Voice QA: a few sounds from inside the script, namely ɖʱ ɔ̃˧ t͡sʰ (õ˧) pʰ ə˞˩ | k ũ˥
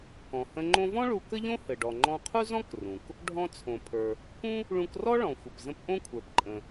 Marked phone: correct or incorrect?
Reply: incorrect